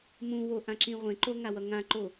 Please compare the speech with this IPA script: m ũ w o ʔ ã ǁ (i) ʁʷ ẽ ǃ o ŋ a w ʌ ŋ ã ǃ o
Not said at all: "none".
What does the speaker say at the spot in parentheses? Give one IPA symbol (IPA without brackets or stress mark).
ĩ